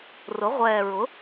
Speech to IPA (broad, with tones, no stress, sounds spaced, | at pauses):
r ʊ˩˥ ʁʷ ɛː˨˩ ɹ ʊ˩˥